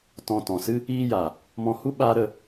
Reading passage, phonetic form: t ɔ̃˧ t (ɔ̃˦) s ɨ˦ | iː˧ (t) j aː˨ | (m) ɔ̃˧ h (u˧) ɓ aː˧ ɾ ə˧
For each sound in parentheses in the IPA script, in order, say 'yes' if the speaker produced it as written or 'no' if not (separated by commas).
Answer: no, no, yes, no